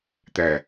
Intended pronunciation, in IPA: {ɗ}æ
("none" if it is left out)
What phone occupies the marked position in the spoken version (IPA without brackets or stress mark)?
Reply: t̪